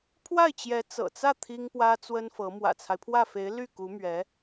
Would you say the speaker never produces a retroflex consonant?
yes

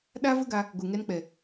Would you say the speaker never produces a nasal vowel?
yes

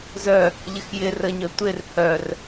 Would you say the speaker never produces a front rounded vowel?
no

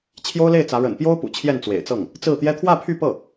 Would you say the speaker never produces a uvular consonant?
yes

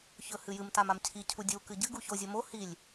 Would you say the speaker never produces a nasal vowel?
yes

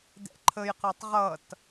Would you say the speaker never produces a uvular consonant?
no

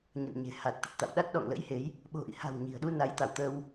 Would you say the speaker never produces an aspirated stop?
yes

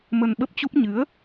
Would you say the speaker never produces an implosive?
no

